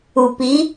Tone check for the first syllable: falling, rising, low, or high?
low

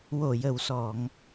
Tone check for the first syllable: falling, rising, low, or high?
low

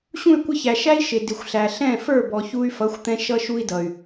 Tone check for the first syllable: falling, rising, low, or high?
falling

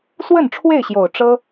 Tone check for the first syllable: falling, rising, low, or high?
falling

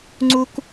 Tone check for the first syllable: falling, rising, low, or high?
high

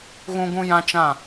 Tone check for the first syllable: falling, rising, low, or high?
high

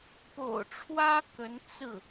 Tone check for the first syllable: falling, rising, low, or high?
low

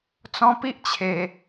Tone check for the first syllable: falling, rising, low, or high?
high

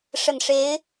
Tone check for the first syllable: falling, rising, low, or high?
low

